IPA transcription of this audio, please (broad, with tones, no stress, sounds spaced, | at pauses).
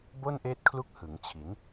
b o˥˩ n ʔ eː˦˥ t̚ kʰ l u˦˥ k̚ h ɯ˩˦ ŋ t͡ɕʰ i˩˦ n